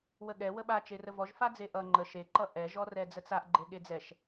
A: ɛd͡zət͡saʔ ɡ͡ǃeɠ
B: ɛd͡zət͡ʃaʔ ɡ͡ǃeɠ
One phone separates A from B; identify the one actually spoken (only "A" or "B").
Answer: A